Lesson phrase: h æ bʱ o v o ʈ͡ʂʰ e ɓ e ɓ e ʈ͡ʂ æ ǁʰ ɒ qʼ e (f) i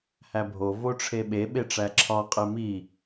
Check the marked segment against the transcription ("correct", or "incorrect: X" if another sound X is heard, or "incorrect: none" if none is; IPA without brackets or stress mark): incorrect: m